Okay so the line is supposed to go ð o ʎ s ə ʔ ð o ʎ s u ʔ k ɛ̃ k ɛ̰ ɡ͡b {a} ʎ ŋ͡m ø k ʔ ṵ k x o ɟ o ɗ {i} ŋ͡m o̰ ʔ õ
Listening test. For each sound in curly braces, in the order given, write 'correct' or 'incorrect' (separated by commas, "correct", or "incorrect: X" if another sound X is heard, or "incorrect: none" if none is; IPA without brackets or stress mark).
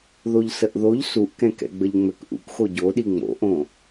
incorrect: ə, correct